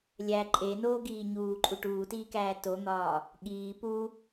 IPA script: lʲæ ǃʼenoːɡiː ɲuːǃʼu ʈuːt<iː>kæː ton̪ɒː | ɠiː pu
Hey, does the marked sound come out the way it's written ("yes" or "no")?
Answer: yes